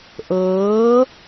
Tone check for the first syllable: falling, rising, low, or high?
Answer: rising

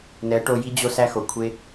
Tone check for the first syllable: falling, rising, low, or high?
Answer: rising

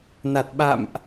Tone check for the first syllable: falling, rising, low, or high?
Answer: low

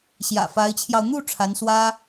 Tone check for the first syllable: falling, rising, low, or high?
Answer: low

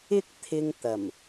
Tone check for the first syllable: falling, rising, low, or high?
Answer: high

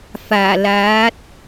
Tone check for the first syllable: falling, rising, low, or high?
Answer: low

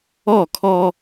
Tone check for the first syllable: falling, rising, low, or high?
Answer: falling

